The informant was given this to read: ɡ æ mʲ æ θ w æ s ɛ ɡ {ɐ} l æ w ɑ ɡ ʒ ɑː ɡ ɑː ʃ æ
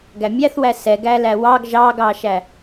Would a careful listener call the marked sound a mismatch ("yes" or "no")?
yes